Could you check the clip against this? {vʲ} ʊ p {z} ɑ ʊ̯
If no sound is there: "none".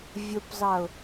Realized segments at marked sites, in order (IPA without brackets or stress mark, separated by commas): vʲ, z